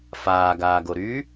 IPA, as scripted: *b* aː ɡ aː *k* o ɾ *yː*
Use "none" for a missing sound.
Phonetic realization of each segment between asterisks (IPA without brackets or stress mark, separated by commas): f, ɡ, yː